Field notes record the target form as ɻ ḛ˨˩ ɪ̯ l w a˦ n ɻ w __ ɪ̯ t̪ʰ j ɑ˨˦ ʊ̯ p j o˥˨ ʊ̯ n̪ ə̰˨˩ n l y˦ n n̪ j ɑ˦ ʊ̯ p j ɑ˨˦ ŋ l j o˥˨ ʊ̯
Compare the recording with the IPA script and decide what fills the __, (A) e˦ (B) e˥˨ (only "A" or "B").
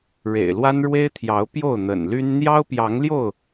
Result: A